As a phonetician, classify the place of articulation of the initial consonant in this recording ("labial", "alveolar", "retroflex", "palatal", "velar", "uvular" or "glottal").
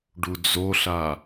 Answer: retroflex